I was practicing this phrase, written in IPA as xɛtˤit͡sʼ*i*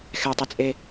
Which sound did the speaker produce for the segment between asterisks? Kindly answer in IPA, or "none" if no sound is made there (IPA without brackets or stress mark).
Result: e